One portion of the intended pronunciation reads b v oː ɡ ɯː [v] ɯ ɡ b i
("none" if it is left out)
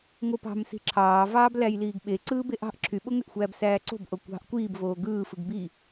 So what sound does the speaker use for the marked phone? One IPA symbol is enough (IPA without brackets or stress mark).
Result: f